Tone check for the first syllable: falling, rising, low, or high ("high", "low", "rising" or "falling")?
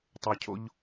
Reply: low